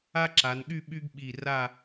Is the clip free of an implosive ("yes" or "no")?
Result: no